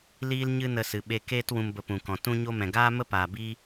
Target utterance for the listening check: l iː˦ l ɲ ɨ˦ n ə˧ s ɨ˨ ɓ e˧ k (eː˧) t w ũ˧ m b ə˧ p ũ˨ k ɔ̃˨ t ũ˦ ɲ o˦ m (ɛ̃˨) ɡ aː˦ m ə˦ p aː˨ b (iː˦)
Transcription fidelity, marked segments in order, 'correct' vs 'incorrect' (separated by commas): incorrect, correct, correct